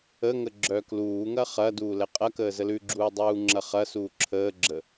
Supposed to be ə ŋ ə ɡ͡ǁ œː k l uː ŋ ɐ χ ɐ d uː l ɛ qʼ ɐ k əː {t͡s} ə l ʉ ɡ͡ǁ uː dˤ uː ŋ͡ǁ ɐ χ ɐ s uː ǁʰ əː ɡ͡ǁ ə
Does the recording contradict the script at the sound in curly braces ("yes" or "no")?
yes